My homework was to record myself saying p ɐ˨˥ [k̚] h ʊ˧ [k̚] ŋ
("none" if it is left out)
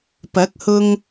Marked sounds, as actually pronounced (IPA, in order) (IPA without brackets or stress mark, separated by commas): k̚, none